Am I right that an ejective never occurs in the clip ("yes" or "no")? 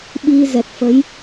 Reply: yes